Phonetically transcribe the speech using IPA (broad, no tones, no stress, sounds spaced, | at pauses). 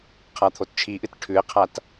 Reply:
qʰ a t̪ʰ o t t͡ʃʰ i ʔ ɨ t ʈʰ ʉ e̯ qʰ a t